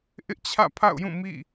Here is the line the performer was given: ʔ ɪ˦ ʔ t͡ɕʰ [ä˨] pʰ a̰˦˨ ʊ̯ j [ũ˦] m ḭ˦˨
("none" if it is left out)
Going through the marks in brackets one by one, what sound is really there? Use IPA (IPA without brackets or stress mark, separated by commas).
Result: ä̰˦˨, ũ˦˨